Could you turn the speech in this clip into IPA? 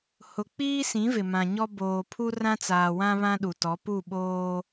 h ʊ˨ k͡p iː˦ s ĩ˨˦ v ɪ˨ m ã˨ ɲ ɔ˦ b oː˨ pʰ u˦ r ã˦ t͡s aː˨ w ã˦ β ã˦ ɗ u˨ t ɔ˨˦ p u˦˨ ɓ oː˦

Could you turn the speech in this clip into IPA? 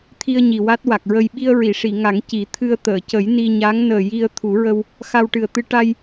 t̪ʰ i˧ ə̯ ɲ i˨˩ w a˦˥ t̚ w a˨˩ k̚ ɹ ə˧ j ɓ i˧ ə̯ ɹ i˨˩˨ ʂ i˨˩˨ ŋ a˨˩˦ ŋ c i˨˩˦ t̪ʰ ɨ˧ ə̯ t̪ əː˨˩˨ c ə˨˩˦ j n i˧ ɲ a˧˥ ŋ n əː˨˩ j i˧ ə̯ t̪ʰ u˨˩˦ ɹ ə˧ w | x a˧ w ʈ ɨ˨˩ ə̯ t̪ ɨ˧ ʈ a˧ j

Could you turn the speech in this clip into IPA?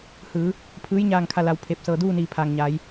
h ɯː˩˧ | pʰ ɯː˧˥ j ɲ aː˥˨ ŋ kʰ a˥˨ l a˧ w pʰ e˧˩ p̚ s ɤː˧˩ d uː˥˨ n iː˧˩ pʰ aː˩ ŋ ɲ aː˩˧ j

